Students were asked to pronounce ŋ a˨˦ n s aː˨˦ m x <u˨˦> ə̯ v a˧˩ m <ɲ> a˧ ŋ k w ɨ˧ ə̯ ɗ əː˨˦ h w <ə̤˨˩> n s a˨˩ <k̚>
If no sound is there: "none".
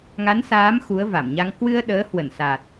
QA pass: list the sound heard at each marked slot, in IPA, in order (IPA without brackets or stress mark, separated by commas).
u˨˦, ɲ, ə˧˩, t̚